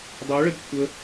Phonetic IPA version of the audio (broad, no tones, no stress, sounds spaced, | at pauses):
dˤ ɤ ɭ ə d kʷʰ ə